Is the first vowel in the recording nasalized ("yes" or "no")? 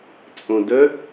yes